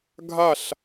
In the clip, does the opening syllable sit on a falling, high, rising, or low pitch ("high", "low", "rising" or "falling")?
falling